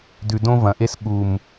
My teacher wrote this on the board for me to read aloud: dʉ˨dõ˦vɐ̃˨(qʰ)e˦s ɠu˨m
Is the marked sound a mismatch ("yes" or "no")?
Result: yes